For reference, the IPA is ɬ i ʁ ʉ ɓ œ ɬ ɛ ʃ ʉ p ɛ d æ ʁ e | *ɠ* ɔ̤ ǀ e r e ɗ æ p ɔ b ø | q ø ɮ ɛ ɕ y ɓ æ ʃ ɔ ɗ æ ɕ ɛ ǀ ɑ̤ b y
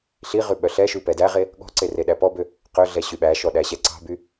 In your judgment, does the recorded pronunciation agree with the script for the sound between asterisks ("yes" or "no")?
yes